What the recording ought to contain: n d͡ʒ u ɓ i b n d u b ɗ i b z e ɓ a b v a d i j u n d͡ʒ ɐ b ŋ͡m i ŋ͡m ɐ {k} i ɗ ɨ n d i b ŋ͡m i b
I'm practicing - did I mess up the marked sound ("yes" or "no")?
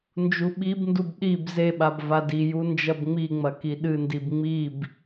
no